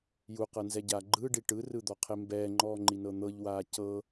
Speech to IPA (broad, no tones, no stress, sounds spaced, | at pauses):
j u q ɤ n z ɛ ɟ aː ɡ͡ǃ ɯː ɖ i ʈ ɯ r ɯ d̪ ɔ qʰ e m b ɛː ŋ͡ǃ ɔː ŋ͡ǃ i n ɤ n̪ ɤ ʎ w aː c ɤ